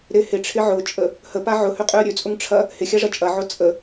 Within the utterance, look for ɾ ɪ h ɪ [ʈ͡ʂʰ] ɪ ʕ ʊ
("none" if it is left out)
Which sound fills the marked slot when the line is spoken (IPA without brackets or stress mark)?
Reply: ʈ͡ʂʰ